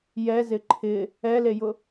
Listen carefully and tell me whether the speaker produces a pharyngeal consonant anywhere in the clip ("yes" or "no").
no